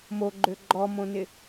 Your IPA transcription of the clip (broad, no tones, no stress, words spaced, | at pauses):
moɡ͡ǃø ɡ͡ǃɔmõnɪ